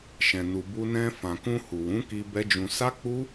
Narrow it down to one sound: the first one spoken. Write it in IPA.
ʃ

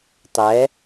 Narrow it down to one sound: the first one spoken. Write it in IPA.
tˤ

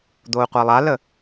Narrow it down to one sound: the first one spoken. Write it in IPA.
d̪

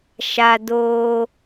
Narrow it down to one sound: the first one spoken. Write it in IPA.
ʃ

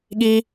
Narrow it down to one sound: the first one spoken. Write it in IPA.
ɠ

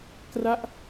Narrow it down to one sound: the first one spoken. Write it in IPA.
k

